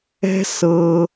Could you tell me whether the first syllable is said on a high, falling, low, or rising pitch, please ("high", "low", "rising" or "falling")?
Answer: high